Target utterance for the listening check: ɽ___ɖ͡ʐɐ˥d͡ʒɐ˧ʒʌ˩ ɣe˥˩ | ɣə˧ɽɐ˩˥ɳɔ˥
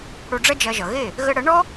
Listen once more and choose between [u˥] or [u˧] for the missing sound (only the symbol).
u˧